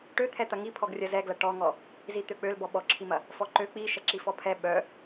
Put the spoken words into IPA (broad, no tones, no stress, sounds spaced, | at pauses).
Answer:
ʈ ø t̪ʰ ɛ t̪ ɐ ŋ i pʰ ɔ ɡ rʲ ɐ z ɛ ɡ l ɐ ʈ ɔ ŋ ɔ | z i t̪ ø k͡p ø l b ɔ ɓ ɔ ǁʰ i m ɐ | f ɔ ǃ ø k͡p i ʃ ɐ ǁ i f ɔ pʰ ɛ ɓ œ